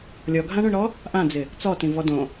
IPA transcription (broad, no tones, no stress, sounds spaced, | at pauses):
lʲ ɔ ɡʱ ã ɳ õ ɳ ɾ ɔ | ʔ ã d͡z ɪ | t͡s ɔ t ĩ v ɔ d õ